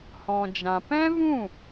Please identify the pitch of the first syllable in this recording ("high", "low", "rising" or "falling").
low